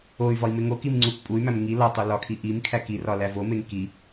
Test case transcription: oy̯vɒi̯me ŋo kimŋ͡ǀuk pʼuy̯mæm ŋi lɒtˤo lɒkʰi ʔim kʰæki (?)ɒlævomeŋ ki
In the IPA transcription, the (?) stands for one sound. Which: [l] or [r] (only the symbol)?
r